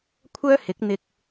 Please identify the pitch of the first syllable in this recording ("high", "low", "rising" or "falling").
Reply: high